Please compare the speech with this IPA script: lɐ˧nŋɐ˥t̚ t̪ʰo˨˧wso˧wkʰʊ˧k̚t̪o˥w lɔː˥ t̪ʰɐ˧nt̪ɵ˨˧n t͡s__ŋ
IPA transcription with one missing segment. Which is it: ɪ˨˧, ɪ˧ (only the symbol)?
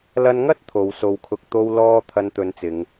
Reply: ɪ˨˧